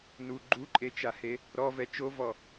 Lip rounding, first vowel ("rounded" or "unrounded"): rounded